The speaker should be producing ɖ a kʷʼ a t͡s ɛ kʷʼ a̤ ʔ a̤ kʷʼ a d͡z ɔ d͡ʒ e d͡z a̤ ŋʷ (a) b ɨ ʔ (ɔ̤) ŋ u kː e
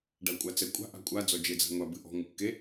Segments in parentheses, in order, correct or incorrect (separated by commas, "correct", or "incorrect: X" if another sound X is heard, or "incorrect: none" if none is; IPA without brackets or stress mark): correct, correct